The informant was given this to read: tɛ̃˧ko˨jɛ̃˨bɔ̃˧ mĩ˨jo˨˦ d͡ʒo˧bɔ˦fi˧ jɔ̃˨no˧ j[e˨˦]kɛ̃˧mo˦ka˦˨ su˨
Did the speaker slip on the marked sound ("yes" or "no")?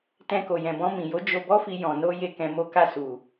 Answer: yes